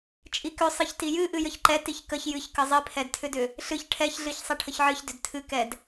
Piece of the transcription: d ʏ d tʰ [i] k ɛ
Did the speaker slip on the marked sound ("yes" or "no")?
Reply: yes